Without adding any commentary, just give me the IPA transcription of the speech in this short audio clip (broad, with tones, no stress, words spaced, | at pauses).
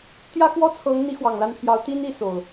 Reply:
t̪jä˦kwɔ˦t͡sʰɤ˨˦ŋn̪i˨˦ xwɑ˨˩ŋla˥˨npʰjɑ˨˦ʊ̯ t̪i˦n i˥˨ so˨˩ʊ̯